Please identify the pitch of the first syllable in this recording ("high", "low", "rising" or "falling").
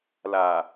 low